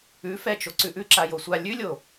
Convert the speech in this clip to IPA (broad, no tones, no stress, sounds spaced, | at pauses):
ʉ f ɛ t͡ʃ o ǀ ʉ ʔ ʉ ǁ a j o sʷ a lʲ ʉ lʲ o